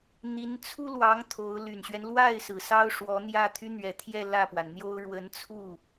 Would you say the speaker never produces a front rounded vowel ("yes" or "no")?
no